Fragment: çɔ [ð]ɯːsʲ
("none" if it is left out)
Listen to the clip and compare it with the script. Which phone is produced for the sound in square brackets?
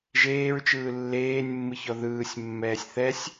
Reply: ð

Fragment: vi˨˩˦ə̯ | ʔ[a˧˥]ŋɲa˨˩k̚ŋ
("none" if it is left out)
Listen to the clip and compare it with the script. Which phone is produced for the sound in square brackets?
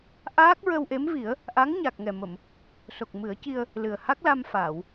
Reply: a˧˥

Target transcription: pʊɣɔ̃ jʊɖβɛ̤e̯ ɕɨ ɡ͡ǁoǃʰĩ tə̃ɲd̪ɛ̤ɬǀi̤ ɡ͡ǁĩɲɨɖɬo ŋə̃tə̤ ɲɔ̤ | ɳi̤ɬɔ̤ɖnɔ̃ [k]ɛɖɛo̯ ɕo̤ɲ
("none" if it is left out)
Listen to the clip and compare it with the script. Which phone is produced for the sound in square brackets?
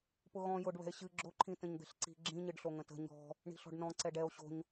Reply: ǀ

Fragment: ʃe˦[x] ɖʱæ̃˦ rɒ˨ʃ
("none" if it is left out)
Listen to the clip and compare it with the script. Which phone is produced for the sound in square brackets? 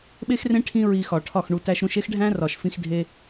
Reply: x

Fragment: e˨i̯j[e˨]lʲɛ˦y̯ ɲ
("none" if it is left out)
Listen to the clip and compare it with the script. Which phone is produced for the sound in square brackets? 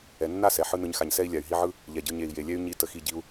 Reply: e˨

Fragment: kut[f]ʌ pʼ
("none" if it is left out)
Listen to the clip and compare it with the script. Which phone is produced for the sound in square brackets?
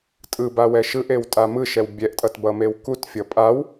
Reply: fʲ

